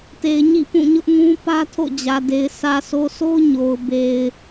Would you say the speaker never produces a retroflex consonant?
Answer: yes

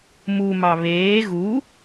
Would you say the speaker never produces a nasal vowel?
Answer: yes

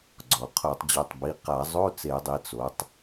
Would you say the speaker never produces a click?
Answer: no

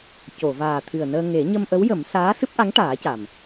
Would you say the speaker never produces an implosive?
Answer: yes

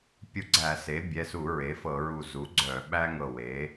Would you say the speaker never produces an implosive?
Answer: no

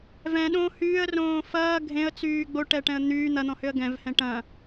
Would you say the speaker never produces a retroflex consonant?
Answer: no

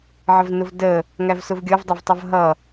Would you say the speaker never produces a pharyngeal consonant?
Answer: no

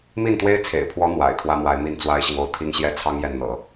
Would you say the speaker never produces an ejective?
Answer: yes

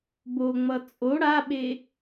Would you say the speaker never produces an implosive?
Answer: no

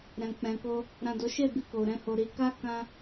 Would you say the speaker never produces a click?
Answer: yes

